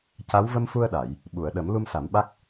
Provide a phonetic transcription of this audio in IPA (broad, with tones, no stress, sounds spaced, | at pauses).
c a˧˥ w v ə˧ m f u˧ ə̯ ɗ a˨˩˨ j | ɓ u˨˩˨ ə̯ ɗ ə˨˩˦ m l u˧ m s a˨˩˦ m ɓ a˦˥ k̚